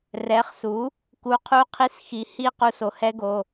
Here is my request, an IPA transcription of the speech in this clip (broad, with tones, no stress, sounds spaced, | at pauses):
r ɛ˩˥ χ s u˩˥ | k u˩˧˩ qʰ u˦˥ qʰ i˦˨ s x i˩˥ h i˦˨ q u˦˨ s o˩˥ h ɛ˦˥ ɡ o˩˧˩